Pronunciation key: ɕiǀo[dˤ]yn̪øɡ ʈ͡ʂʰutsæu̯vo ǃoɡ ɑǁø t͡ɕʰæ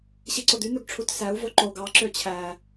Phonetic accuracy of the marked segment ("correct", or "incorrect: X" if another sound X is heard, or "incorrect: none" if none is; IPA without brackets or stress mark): incorrect: d̪